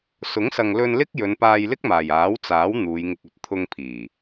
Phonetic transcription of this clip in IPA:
s ʊ˨˥ ŋ s ɐ˨ ŋ l ɵ˧ n l ɪ˥ k̚ j ɵ˨˧ n p aː˧ j l ɪ˥ k̚ m aː˨˩ j aː˨˥ w t͡s aː˨˥ w n̪ uː˨˧ j ŋ ɪ˧ k̚ ɵ˨˥ t̚ t̪ʰ ʊ˧ ŋ pʰ iː˨˩

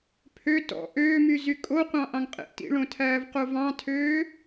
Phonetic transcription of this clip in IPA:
pʰ ø t ɔ̰ ʔ øː m y z y kʼ o qʷ ɑ̃ ʔ ɑ̃ ŋ qʼ ḛ ʔ t ḭ ɭ õ tʰ æː v q o v ɑ̃ tʰ øː

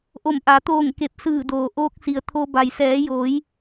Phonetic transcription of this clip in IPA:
ʔ o˧˩ m ʔ a˩˧ t̪ oː˧˩ ŋ k e˧˩ p̚ s ɯː˧˩ d oː˩ ʔ oː˧ k̚ s i˩ ə̯ t̪ʰ o˧ b a˩ j s ɛː˩˧ j oː˩˧ j

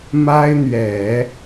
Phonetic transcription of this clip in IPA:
m a˥ ɪ̯ n̪ ɥ ɛ˨˩˦

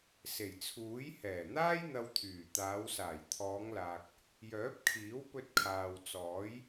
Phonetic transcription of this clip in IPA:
s e˨˩ j t͡sʰ uː˨˥ j h ɛː˨˩ n̪ aː˥ j n̪ ɐ˧ w t̪ʰ yː˨˩ t̪ aː˨˧ w s aː˨˩ j t̪ʰ ɔː˨˧ ŋ l aː˨ k̚ | j œː˨˥ p̚ kʰ iː˨˥ w p ɵ˧ t̚ kʰ aː˨ w t͡s ɔː˨˥ j

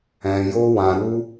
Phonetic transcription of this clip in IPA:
ɛ̃˨ j o˧ w ã˨ ɾ u˧

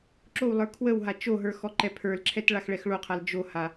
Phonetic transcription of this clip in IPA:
ǁ o w lˠ ə˞ kʰ w ə w ɦ a t͡ʃ o ɦ ə˞ x ɔ ǃ ɛ pʰ ə˞ l ǁʰ ɛ t ɭ a x ɭ ɛ x ɭ o qʰ a l d͡ʒ o h a

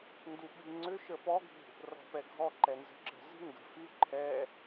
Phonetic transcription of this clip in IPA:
n d u ɓ i ŋ͡ǀ ʏ ʃ ə p ɔ ɡʱ ṳ | r ɔ̤ p ɛ ɡʱ ɔ ǃ ɛ n z ə̤ ǁ ə̤ z i̤ ŋ ɡ ə̤ f y ǃʰ ɛ

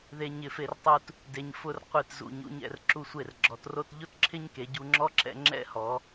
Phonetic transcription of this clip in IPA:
ð e˥ ɲ ɪ˥˧ f e˥ r tˤ u˥ t | d e˧ ɲ f ʊ˥˧ r qʷ i˧˩ t z ṵ˧˩ ɲ ṵ˧ ɲ ɛ̰˧ r ǁ u˧ sʷ e˧˩ r ɡ͡ǁ ɔ˩˧ t r o˥˧ t ʎ ʊ˥ t ǁʰ ɪ˥ ɲ k e˩˧ ɟ u˧ ŋ͡ǁ ɔ˥ ǁ ɛ̰˧ ŋ͡ǁ ɛ̰˥˧ h ɔ˩˧

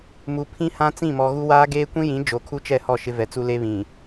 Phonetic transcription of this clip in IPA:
m u˨ pʰ ĩ˦ h ã˦ t͡s ĩ˦˨ m ɔ˨ ɣ u˦ w aː˦ ɡ eː˦ kʷ ĩ˦ j ĩ˨˦ d͡ʒ o˨ kʰ u˦ t͡ʃ ɛ˦˨ h ɔ˦˨ ʃ ɪ˦ v ɛ˨ t͡s u˦ l e˦ β ĩ˨

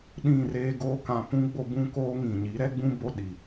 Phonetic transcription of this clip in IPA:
ɗ ĩ˦˨ r eː˦ ɡ oː˦ k ã˨ p ũ˦ ɡ͡b o˦ b ũ˦ k oː˦ ŋ ĩ˨ ɲ i˨˦ ɾ ɛ˦ ɡ͡b ũ˦ b o˦ ɗ i˨

